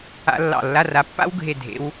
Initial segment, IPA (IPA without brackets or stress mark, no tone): a̰